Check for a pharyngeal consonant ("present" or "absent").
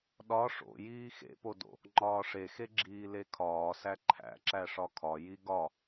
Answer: absent